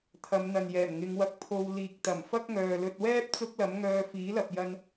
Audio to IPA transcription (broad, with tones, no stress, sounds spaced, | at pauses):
t̪ʰ ɐ˨˧ m n̪ ɐ˨ n j ɛː˨˩ m ŋ ɪ˨˧ ŋ w ɐ˧ k̚ pʰ o˧ w l iː˨ k̚ t̪ ɐ˨˩ m f ɐ˥ k̚ ŋ œː˨ l ɵ˧ t̚ w ɛː˥ p̚ t͡s ʊ˥ k̚ l ɐ˨˥ m ŋ œː˧ f iː˨˥ l ɐ˨ p̚ j ɐ˧ n